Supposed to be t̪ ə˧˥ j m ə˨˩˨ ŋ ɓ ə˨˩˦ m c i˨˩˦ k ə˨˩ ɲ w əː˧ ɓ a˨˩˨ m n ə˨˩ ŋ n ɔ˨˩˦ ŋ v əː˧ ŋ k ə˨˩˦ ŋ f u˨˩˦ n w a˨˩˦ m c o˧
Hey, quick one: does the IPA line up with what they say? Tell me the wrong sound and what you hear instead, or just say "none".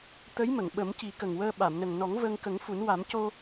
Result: ɲ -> ŋ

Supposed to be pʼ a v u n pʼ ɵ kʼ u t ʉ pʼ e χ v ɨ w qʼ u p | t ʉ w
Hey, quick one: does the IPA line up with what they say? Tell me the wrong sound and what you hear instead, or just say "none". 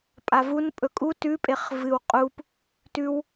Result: none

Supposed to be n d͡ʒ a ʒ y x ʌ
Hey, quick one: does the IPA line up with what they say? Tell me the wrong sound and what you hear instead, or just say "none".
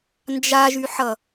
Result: x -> ħ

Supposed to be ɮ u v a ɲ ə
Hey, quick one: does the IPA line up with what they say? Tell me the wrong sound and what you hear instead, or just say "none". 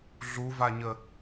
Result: none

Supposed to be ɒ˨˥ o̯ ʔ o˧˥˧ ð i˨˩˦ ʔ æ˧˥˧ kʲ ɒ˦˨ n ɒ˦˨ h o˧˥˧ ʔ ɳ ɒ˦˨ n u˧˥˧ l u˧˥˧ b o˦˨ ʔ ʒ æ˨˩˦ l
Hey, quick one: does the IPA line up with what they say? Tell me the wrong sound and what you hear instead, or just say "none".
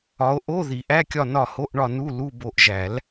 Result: none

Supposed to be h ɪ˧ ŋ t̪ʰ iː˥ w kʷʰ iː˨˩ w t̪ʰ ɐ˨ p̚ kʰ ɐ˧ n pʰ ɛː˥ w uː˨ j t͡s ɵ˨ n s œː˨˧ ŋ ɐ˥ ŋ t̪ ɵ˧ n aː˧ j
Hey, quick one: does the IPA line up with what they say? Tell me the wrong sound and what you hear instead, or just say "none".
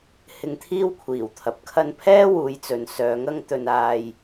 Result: uː˨ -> uː˨˥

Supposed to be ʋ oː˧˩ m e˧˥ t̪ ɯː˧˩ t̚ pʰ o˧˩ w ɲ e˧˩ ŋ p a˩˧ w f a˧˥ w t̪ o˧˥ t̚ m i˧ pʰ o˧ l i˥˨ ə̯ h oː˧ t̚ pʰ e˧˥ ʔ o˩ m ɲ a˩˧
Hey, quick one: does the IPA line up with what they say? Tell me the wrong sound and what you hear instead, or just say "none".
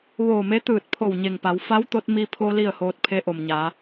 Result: none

